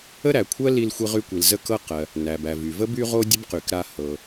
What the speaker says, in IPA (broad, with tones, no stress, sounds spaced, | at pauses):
ə˥ ɾ æ˩ kʷʰ ɜ˥ l i˧ l xʷ i˧ ʁ y˧ kʷ i˩ l z ə˥ k ɤ˥ q ɜ˩ | n æ˩ b æ˩ v y˩ v ə˥ b y˥ ʁ o˥ dʲ ə˥ b q y˩ k ɾ a˧ h ɤ˩